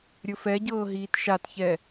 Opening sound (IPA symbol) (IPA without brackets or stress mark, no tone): ɾʲ